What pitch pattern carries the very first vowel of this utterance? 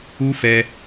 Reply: high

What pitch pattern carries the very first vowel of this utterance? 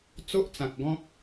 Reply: high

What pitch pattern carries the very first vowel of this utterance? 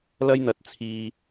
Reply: high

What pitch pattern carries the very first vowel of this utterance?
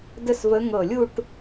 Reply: falling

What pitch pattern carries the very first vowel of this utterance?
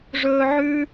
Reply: high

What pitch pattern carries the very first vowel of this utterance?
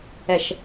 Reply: low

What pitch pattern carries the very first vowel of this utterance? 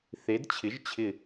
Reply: rising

